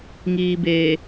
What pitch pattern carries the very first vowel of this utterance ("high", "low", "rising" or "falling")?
low